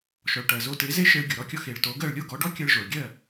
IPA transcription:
ʃɔ˩ɭʈɜ˩ zo˧te˩˥ ze˥ʃe˧ɭ ɡʲo˩ɾɔ˥˩kʲɔ˧ xe˩ɭto˩˥ɡɜ˥˩ɭ lʲo˥˩ɡɔ˩˥ɖɔ˥ kʲɜ˧ɭʒo˩ɭɡʲɜ˥˩

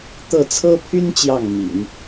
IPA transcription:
t̪ɤ˥˩ t͡sʰɤ˥pʰy˥n t͡ɕjɑ˥˩ŋmḭ˨˩˦n

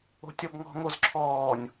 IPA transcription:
o̤tʲɔbŋɔ̤ ŋozǁʰɔːnʲ

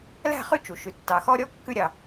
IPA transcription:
læ̤˦˨χʉ˦ t͡ʃu˨ ʃʉ˨tːɑ˨xɔ˦ɾʲɔ˦ kːʉ˦ɾʲɑ˨

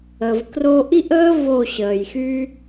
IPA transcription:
ə˨vkro˧ʔi˦ʔəː˦ vo˦˨ɕəː˨jxy˦

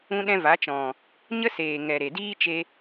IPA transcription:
ũ˦ɗɛ̃˦ va˨˦ t͡ʃɔ̃˨ | ɲə˦seː˨ ŋɛ˨ɾe˨ diː˦t͡ʃe˧

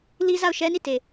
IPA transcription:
li˦za˦˨ʊ̯ʃɛ˦ ni˦˨te˨

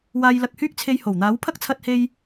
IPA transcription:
waː˧jlɐ˧k̚hyː˥k̚t͡sʰe˧j ho˨˩wn̪aː˨˥wpʰɐ˥k̚ t͡sʰɐ˧t̚he˧j

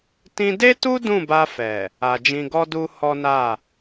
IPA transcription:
tĩ˧de˦tu˦ dũ˦˨ba˧ fɛ˨ | a˨d͡ʒĩ˧ɡɔ˦du˦ hɔ˦na˦˨

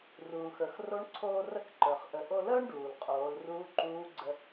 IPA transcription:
ruː˩xə˞˩x ro˧˥ɳǀʰoː˧rə˧˥kǃə˞˩χ ʔə˩ ʔo˧ləː˥ɳɖuː˩l qʼoː˩˧lruː˧˥ǃuː˧˥ɡ͡ǀə˧

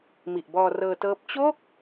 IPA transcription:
mi˨˩ʔbɔː˧rɤː˧tɤː˦˥p̚ t͡ɕo˥˩k̚

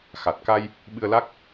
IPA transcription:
xa˨˩t̚ka˧j | ɓɨ˧ə̯la˦˥k̚

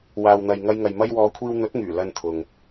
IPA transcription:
waː˨wn̪ɐ˨jŋɐ˧jŋɐ˨j mɐ˧jwɔː˨˧kʷʰiː˧w n̪ɵ˨˥t̚ŋyː˨˩ lɐ˧nt̪ʰʊ˨ŋ

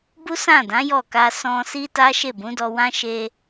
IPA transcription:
bu˦sã˦˨dã˨˦ jɔ˦˨ ka˧ sɔ̃˧si˦ ta˦ʃe˦˨ bũ˨˦dɔ˧ wã˦ʃe˧

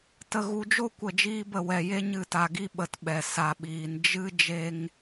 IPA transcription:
tə˧ɣu˧d͡ʒo˦ kʷə˦˨d͡ʒiː˦bə˦˨wɛ˧ je˦ɲɨ˦˨ta˧ɡi˦ ɓə˧tɓɛ˨ sa˨ɓiː˨n d͡ʒɨ˦ d͡ʒe˦ŋ

